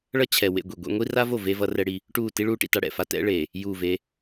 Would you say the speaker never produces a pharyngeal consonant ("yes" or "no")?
yes